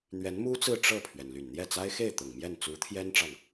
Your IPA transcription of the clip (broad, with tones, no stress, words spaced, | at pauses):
n̪ɥɛ˧˥nmu˥t͡sɹ̩˥˧ ʈ͡ʂɤ˥˩pʰɥɛ˩n ly˨˩nn̪jɛ˥˩t͡sa˥ɪ̯ xe˥˩ɪ̯ t̪ʊ˨˩ŋmjɛ˥˩n t͡su˧˥t̪ʰjɛ˥nʈ͡ʂɑ˨ŋ